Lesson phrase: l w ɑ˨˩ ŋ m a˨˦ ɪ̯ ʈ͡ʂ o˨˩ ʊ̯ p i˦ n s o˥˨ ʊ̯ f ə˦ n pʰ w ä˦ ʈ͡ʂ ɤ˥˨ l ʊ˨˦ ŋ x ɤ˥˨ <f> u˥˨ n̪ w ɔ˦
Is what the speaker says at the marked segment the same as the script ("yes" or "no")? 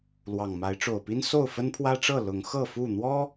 yes